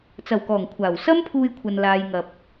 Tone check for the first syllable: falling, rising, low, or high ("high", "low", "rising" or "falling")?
low